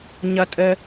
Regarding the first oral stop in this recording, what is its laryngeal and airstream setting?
ejective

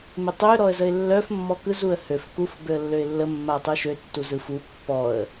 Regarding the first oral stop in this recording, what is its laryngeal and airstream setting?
plain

